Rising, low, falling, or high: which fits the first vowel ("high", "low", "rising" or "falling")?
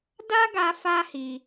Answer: high